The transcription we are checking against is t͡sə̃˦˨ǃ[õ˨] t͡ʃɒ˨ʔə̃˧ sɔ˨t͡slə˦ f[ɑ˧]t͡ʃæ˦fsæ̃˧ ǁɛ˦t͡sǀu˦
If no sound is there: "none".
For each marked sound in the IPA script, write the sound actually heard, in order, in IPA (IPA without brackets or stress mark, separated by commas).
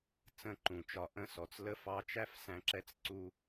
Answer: ũ˨, ɑ˧